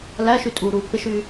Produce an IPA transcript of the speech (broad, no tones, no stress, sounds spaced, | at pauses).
l æ ʃ y tʼ uː ɾ uː pː ɪ ʃ yː